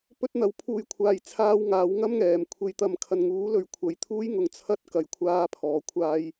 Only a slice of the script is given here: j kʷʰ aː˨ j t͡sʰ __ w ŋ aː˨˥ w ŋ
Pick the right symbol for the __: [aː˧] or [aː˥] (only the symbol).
aː˧